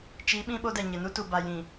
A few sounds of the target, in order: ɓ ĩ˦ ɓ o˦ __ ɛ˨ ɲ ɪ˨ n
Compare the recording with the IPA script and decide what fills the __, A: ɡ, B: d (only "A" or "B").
B